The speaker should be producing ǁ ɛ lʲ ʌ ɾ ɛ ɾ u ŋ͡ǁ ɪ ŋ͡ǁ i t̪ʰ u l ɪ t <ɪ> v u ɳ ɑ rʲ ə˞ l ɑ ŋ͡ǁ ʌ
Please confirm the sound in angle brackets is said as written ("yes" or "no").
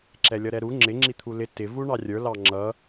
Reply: yes